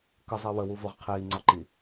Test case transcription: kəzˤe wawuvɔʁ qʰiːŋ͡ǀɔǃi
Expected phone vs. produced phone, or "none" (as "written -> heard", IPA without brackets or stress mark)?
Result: a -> ə